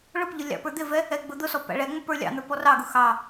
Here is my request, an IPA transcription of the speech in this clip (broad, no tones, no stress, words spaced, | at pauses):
ɭʊpʎʊ lʲɑ̰pə˞d̪ɪvɛ | ɛɡ͡bʊd̪ʊsɔ pæ̰ɭɛŋ͡mə pə˞lʲɑ̰n̪ə˞ pɔrɑɡʊ xɑ